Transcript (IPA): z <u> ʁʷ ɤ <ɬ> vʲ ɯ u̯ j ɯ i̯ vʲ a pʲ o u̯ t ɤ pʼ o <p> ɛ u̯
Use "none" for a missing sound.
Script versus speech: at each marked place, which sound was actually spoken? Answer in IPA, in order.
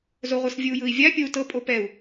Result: o, s, p

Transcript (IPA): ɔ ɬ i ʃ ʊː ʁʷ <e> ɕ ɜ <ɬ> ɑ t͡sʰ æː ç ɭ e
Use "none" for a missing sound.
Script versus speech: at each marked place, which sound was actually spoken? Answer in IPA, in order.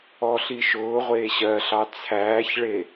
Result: eː, ɬ

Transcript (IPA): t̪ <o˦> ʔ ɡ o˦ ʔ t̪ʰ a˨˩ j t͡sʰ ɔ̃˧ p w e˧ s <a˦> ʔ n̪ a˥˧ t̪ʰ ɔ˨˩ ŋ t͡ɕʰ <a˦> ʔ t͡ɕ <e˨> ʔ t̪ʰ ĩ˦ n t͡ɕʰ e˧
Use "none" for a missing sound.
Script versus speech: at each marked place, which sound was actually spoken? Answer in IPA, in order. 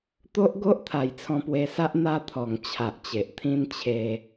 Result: o˦, a˦, a˨, e˨

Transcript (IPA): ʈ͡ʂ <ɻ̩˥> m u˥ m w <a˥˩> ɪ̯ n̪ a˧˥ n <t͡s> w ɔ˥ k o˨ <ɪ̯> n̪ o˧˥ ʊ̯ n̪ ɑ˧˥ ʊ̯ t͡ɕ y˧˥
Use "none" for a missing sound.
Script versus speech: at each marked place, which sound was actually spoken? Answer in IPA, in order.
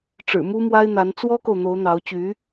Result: ɻ̩˨˩, a˥, t͡s, ʊ̯

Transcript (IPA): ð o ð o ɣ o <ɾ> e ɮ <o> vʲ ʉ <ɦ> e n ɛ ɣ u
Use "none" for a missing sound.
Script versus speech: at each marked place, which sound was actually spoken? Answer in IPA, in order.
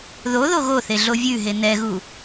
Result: θ, o, ɦ

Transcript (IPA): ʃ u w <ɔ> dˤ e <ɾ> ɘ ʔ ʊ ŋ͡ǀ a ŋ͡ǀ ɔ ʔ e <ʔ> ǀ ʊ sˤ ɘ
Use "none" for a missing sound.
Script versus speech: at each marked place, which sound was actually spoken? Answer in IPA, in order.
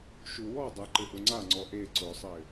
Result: ɔ, ǃ, none

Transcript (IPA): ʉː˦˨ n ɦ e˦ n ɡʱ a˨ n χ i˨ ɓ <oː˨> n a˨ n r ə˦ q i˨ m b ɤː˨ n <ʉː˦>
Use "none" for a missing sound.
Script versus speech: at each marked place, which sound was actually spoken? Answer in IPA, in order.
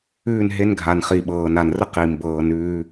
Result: ɤː˨, ʉː˦

